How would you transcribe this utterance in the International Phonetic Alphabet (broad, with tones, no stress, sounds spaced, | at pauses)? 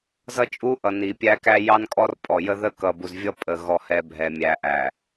z ʌ˦ t͡ʃʼ u˦ ʔ ʌ˨ n i˨ pʲ æ˦ k æ˦ j ɑ˦ n kʼ ɔ˦ r pʼ ɔ˨ j ə˦ ð ə˦ k ʌ˨ b u˨ z vʲ ʌ˦ pʼ ə˨ ɣ ɔ˨ h ɛ˨ bʱ ɛ˨ mʲ æ˨ ʔ æ˨